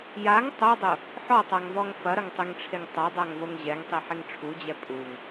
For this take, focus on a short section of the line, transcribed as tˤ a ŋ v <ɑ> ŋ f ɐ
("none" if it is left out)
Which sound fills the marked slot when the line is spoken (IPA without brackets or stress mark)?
ɔ